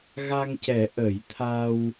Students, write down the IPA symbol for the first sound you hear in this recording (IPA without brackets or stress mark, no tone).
ɣ